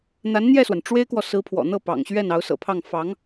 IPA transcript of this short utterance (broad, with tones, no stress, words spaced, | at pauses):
n̪a˧˥nn̪jɛ˥˩swa˩n ʈ͡ʂwe˥ɪ̯kwɔ˨ sɹ̩˧˥pʰwɔ̰˨˩ n̪ɤ˥˩pɑ̰˨˩ŋ ɕɥɛ˥˩n ɑ˧˥ʊ̯sɤ̰˨˩pʰɑ˥˩ŋ fɑ˧˥ŋ